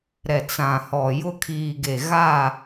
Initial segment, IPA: ɾ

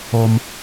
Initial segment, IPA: o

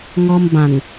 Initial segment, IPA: ŋ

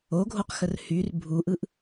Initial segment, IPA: o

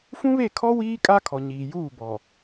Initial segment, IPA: f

